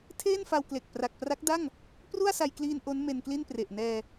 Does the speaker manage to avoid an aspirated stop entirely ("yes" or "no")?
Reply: no